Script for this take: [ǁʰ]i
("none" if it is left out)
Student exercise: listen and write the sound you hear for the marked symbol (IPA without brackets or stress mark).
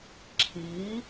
ǁʰ